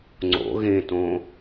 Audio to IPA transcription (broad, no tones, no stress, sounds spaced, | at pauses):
ŋ͡ǀ o̰ ɣ ẽ t õ